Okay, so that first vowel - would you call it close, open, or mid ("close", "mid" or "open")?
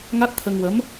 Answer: open